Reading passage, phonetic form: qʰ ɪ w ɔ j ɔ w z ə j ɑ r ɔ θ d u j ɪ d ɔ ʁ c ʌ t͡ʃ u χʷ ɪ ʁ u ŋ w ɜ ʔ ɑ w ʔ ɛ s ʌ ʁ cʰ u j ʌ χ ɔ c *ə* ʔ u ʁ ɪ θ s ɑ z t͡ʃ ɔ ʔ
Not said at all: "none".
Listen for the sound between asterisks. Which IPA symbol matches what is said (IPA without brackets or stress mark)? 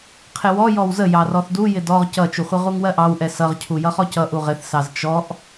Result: ʌ